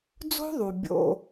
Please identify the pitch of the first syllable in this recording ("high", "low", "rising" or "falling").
high